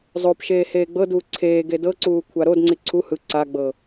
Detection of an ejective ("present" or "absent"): absent